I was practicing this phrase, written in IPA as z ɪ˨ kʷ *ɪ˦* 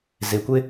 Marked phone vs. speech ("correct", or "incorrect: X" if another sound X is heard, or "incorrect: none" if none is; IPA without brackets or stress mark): correct